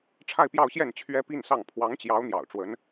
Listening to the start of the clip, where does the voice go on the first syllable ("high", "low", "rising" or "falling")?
falling